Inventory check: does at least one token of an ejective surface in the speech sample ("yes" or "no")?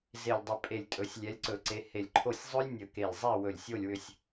yes